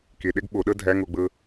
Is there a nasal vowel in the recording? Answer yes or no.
no